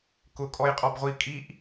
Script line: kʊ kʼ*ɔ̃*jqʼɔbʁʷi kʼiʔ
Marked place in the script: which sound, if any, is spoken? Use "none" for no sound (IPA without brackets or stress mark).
ɔ